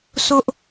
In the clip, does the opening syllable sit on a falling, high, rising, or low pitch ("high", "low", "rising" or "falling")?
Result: high